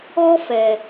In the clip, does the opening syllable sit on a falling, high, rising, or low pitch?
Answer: high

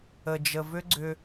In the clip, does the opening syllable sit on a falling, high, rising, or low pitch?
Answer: low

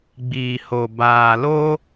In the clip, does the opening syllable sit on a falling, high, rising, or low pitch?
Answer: low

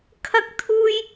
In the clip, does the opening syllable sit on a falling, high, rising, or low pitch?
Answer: high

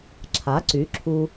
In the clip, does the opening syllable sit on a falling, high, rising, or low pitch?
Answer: rising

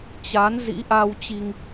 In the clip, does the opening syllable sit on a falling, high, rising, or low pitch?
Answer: rising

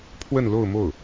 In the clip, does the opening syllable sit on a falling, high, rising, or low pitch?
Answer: falling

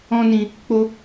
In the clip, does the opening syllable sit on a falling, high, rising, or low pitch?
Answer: high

